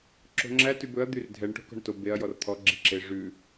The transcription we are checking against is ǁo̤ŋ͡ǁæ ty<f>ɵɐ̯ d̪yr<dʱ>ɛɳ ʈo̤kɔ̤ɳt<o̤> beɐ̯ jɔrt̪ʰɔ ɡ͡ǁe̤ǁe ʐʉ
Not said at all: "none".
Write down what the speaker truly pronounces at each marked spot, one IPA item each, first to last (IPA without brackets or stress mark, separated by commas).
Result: b, dʱ, o